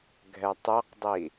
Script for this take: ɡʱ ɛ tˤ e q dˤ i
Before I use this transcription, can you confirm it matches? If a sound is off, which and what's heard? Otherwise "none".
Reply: none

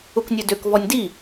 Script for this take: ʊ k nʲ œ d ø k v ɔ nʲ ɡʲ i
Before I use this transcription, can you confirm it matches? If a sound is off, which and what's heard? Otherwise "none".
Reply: ɡʲ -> d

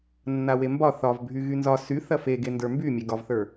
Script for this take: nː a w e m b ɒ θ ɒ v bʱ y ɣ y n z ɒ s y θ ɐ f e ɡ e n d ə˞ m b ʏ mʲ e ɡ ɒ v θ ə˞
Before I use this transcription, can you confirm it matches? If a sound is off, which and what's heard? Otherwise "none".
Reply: ʏ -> y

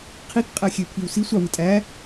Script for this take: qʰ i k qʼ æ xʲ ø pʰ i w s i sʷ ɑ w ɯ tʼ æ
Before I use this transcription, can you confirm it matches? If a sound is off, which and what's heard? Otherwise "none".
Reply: none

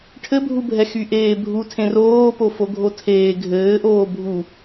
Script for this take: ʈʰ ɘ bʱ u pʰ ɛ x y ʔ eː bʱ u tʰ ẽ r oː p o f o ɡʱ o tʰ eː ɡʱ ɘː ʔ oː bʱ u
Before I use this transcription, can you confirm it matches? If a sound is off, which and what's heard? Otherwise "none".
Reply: pʰ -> bʱ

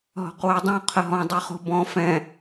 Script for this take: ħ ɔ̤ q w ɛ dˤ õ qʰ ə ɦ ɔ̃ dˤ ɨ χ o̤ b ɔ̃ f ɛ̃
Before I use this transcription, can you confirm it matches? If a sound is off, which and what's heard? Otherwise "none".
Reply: ħ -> ɦ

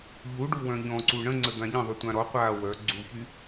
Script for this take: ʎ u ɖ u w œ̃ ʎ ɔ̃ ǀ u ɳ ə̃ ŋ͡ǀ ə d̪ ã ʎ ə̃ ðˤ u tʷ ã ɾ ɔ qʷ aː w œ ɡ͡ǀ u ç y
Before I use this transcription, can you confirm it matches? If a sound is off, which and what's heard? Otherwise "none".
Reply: none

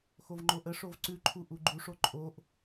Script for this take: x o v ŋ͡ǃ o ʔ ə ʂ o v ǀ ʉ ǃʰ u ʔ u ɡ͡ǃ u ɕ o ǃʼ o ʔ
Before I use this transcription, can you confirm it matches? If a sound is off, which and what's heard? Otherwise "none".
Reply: ɕ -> ʂ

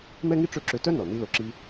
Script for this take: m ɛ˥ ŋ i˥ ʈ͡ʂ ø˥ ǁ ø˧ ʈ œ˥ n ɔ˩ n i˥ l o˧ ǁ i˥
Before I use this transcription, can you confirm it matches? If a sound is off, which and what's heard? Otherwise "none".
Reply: ʈ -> t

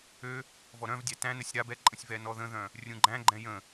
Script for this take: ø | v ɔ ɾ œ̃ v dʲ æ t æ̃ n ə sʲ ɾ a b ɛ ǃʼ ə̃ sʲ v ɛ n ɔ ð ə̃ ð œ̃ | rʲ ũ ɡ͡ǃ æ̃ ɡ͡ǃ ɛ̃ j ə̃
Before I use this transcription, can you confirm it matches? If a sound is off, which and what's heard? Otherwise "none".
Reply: none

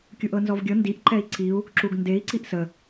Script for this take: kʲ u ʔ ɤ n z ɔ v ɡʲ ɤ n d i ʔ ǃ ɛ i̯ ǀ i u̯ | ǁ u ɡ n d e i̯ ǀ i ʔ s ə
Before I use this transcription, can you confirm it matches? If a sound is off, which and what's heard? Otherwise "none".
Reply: none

